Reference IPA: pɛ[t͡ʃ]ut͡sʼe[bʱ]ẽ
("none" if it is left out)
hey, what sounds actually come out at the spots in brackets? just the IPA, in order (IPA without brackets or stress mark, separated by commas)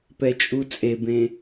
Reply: t͡ʃʼ, b